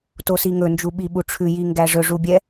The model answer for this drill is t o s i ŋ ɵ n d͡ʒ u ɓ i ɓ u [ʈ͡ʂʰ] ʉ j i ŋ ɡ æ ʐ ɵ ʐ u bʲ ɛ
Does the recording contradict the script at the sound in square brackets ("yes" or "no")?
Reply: no